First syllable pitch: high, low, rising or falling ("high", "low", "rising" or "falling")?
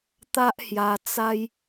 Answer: high